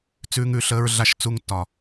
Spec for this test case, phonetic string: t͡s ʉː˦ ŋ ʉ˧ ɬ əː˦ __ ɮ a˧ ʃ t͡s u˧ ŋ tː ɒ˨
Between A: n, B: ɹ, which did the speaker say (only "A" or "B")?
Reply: B